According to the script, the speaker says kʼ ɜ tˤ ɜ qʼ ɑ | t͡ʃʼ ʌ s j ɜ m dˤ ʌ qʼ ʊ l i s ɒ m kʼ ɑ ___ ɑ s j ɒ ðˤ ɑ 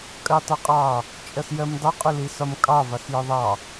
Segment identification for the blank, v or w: v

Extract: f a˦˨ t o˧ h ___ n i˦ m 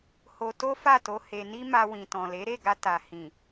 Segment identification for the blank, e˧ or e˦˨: e˧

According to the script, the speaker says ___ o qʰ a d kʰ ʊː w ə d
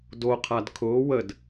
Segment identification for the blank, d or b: d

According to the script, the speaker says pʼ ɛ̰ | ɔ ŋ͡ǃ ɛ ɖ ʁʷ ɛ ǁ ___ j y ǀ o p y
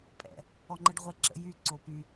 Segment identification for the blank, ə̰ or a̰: ə̰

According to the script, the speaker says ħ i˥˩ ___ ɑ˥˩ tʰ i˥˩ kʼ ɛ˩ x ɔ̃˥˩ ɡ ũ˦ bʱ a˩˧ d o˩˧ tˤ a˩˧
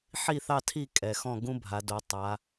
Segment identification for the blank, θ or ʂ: θ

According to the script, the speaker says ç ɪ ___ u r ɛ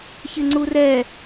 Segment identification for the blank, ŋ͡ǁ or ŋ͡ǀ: ŋ͡ǀ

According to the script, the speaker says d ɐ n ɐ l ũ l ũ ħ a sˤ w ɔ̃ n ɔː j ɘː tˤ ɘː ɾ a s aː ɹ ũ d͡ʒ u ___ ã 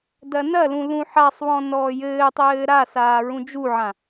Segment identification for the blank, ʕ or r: ʕ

